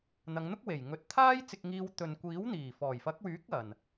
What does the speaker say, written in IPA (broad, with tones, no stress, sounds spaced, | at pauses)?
n̪ ɐ˨˧ ŋ n̪ ʊ˥ k̚ w e˨˩ j ŋ ɵ˨˥ t̚ t̪ʰ aː˥ j t͡s ɪ˧ k̚ ŋ iː˧ w t̪ ɵ˨ n kʷ iː˨˥ w n̪ iː˨˩ f ɔː˨˩ j f ɐ˨˥ k̚ w yː˨˥ k̚ ɐ˨ n